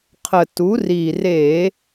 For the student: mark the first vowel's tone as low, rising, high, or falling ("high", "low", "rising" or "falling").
low